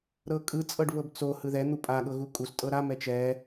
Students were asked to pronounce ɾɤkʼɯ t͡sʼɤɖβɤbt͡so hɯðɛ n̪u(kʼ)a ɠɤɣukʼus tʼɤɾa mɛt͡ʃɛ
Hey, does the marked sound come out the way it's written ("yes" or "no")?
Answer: no